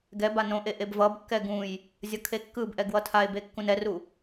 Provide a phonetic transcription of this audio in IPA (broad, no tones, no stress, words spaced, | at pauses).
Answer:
ɡɛba nõʔe ʔebvʌbkːɛ ɡũj | zʲʌkʰekːɯbʔɛ ɡwʌtʰae̯be kːũnɛru